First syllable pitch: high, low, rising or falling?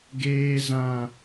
low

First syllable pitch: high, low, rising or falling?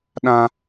high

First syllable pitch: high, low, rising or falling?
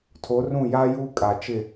rising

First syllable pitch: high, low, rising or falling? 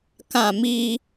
falling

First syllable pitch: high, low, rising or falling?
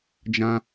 high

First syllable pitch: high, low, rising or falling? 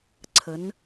rising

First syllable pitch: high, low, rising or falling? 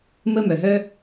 high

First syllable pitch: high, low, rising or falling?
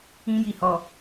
high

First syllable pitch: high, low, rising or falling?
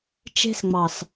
high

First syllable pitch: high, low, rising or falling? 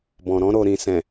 low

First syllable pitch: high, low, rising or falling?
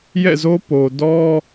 falling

